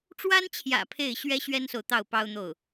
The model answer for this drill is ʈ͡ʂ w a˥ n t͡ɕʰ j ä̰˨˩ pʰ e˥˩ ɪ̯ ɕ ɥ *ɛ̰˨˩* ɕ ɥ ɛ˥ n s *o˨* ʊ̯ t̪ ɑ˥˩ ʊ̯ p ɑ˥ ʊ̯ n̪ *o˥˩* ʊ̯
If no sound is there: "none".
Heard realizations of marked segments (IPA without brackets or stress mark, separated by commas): ɛ˥, o˨, o˥˩